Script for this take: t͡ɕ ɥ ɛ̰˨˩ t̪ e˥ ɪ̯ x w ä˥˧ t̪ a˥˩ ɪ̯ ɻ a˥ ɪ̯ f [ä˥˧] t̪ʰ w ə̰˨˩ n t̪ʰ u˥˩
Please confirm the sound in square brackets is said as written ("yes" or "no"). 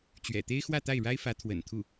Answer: no